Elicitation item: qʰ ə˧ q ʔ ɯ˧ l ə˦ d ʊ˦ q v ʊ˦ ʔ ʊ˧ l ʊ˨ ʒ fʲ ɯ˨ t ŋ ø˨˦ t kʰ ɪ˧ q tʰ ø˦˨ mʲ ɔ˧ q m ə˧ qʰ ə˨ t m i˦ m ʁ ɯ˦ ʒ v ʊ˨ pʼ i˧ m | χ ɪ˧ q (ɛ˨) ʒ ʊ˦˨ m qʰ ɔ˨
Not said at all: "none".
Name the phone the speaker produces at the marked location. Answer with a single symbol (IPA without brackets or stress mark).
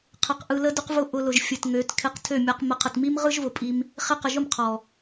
ə˨